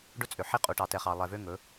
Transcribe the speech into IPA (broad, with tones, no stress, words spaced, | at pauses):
ɖɵ˦t͡sʼø˨ħi˦ qʼu˨ʈɑ˨tɛ˨χɑ˨ lˠɛ˨vø˦ ŋɵ˨˦